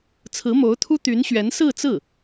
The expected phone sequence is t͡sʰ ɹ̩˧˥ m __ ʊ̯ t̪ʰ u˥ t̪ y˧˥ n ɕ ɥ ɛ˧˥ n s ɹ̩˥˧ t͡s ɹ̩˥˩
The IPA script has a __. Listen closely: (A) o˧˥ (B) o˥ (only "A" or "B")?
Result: A